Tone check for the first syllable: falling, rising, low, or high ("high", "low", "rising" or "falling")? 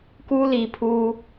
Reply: high